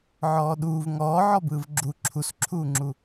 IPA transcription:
ʕɔːɗuːv ŋɔː ʕɔbɯːvɡ͡ǁu ǁʰusǁʰuːŋ͡ǁu

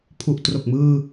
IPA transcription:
pʰu˨˩ʔ tro˨˩k̚mɯː˧

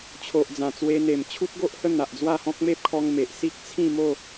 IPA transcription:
t͡ɕʰo˨ʔd͡zã˨˩t͡swe˧ n̪e˨˩m t͡ɕʰu˦t̚ɡo˦ʔhə˥˧ n̪a˨ʔd͡zwa˥˧hɔ̃˦k̚ me˦p̚kʰɔ˧ŋ me˨ʔ si˦k̚t͡sʰĩ˥˧mo˥˧

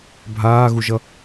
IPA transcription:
bʱaːɣuʒʌ

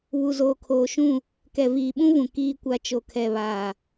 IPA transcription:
βu˨zoː˨kʰoː˨ʃũ˦˨ | kɛ˨viː˨ɓũ˦vũ˨ kiː˦kʷa˦ t͡ʃo˨kʰɛ˨βaː˨

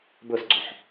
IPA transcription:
bʊsɡ͡ǀoħ

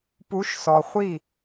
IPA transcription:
pu˨˦ʃsɔ˨ χʷi˦˨

